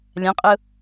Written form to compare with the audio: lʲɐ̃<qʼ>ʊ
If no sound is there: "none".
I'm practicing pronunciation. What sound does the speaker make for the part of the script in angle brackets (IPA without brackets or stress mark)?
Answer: qʼ